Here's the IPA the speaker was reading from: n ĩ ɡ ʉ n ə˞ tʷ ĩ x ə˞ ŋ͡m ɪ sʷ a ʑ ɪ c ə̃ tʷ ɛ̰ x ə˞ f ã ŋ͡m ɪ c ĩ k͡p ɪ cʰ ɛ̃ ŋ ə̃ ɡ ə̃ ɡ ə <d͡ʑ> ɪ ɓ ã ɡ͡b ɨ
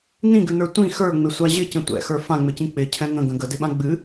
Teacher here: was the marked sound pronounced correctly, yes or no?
no